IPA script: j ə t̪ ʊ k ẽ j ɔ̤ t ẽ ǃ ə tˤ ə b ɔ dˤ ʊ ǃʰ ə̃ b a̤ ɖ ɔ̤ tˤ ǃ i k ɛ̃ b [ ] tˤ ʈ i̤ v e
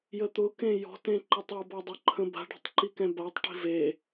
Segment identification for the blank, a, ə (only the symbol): a